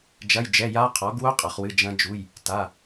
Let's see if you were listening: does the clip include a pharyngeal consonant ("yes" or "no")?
no